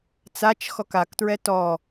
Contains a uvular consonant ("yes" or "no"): no